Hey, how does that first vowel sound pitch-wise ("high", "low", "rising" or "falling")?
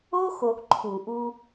high